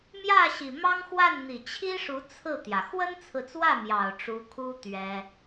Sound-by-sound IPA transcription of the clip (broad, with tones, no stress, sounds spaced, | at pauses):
m j ä˥˩ ɕ i˨˩ m ɑ˥ ŋ x w a˥˩ n n̪ i˨˩ t͡ɕʰ i˥ ʂ u˧˥ t͡sʰ ɹ̩˥˩ t̪ j ä˩ x w ə˥ n t͡sʰ ɹ̩˨ t͡s w ä˥˩ m j ɑ˨˩ ʊ̯ ʈ͡ʂ u˧˥ kʰ u˥ t̪ ɥ ɛ˥